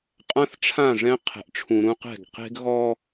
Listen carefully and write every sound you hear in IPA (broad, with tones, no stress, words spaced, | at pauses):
qʼã˦θʈ͡ʂʰã˦˨ʐɛ̃˦ qʰɛ̤˨ʔʈ͡ʂʰũ˨ɾũ˦qɛ̤˦˨ɡ qe̤˦ɡɣɔ˦